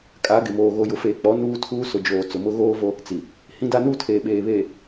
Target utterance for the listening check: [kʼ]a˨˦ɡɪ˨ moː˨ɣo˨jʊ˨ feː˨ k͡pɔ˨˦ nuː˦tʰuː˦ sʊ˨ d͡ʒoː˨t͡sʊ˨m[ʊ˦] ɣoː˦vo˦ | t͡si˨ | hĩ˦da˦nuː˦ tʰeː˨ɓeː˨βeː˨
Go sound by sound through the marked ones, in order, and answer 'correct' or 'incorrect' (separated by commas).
correct, correct